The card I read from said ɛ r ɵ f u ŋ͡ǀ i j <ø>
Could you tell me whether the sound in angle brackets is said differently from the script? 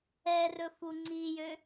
no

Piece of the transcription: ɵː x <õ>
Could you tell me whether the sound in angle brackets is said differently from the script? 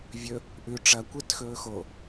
yes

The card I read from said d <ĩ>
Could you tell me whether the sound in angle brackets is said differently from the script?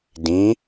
no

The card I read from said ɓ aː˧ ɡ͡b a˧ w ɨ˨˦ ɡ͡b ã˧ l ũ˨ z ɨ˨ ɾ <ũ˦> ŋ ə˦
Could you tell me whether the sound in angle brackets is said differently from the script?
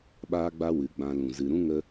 no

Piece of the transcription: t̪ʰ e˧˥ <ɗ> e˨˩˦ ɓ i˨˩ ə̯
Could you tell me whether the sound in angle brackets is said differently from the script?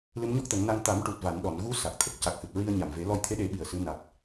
no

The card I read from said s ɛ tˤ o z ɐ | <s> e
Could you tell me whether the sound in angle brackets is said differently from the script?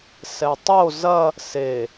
no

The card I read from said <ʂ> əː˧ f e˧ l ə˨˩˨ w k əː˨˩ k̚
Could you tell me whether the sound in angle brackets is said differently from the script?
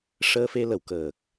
no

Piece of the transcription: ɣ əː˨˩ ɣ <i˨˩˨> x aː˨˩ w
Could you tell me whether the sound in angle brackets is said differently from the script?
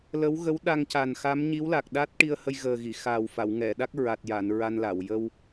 no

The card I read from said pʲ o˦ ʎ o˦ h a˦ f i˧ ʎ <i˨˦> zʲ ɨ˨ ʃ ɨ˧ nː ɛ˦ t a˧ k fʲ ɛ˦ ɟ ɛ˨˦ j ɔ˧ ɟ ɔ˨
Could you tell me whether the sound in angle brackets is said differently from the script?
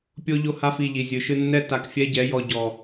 yes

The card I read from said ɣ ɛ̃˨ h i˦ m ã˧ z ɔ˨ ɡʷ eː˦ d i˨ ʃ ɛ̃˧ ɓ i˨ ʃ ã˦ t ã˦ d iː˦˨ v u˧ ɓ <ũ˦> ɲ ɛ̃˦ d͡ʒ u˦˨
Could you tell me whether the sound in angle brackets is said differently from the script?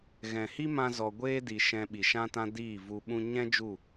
no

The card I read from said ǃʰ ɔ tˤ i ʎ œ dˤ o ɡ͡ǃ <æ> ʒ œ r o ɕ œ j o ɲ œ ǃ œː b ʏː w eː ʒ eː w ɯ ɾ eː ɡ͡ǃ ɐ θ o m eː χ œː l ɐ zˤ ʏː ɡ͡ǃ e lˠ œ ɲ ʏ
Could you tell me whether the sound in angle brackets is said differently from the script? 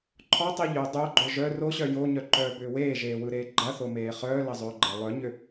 yes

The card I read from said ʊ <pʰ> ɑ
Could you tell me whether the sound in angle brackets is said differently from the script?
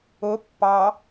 yes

